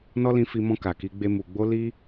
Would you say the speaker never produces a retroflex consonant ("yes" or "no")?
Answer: yes